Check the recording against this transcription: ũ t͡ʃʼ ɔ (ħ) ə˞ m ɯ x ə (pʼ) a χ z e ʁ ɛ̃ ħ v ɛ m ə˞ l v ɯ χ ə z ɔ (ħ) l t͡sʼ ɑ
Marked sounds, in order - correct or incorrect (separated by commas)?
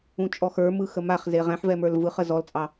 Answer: incorrect, incorrect, incorrect